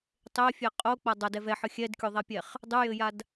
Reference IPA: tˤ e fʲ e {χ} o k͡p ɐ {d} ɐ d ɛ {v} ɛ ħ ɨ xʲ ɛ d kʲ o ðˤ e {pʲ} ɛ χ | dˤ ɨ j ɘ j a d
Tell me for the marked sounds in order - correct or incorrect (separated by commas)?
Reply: incorrect, incorrect, correct, correct